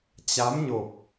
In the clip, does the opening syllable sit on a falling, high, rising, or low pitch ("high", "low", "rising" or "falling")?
rising